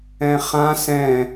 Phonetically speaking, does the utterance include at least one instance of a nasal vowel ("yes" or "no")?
yes